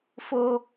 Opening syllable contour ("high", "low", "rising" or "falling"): high